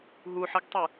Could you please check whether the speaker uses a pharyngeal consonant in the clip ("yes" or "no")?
yes